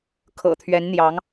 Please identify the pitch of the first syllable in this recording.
low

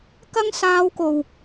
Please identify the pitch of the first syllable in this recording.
high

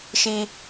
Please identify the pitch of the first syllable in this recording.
high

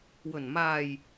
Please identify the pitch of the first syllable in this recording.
low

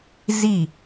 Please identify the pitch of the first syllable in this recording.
falling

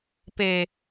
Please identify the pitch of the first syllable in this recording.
low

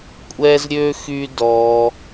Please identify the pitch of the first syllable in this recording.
high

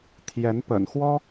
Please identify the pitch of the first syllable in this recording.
rising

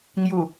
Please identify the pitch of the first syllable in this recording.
low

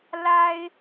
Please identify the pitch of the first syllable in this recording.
high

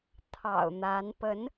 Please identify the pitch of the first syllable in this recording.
low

